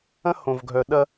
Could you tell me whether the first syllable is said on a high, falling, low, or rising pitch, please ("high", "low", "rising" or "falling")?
high